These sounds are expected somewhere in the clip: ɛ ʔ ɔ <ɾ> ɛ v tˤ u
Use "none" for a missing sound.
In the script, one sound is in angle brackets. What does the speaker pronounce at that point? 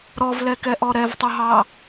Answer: ɾ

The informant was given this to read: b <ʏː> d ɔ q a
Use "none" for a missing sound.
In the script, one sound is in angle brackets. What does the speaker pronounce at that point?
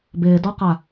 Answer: ɪː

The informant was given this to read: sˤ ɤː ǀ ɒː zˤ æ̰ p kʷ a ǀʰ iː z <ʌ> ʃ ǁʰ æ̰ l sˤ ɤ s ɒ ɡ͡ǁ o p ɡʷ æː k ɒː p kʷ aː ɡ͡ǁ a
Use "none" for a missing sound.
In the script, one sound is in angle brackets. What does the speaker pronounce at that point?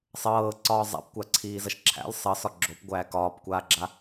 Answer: ʌ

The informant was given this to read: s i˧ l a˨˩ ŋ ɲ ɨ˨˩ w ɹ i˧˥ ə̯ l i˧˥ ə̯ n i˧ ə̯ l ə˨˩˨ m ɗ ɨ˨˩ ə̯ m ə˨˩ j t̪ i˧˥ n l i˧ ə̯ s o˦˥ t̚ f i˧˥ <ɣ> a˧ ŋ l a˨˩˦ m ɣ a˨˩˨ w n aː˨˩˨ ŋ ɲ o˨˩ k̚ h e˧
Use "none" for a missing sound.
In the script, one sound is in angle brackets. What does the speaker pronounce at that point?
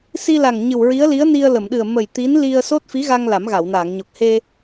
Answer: ɣ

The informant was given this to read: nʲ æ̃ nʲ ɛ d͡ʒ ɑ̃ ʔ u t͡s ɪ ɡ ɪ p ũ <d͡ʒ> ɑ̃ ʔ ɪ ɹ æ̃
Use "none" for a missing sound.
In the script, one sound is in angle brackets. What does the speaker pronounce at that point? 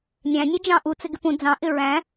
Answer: d͡z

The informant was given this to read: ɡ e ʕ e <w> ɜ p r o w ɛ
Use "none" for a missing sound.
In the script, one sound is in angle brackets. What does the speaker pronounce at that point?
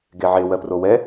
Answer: w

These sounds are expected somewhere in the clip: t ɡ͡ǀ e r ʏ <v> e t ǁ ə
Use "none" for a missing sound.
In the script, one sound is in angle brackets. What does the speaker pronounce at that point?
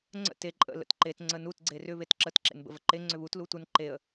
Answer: β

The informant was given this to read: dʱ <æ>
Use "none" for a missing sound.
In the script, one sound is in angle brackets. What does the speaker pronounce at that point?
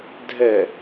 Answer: ɛ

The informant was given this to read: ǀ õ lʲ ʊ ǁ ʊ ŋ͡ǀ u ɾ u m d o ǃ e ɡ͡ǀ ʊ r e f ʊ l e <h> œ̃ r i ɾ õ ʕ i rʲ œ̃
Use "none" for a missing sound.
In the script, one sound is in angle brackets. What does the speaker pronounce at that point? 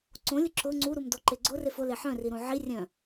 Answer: ħ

